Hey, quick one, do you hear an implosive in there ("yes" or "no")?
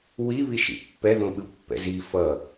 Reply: yes